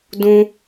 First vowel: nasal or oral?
nasal